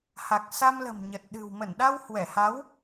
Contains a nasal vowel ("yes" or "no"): no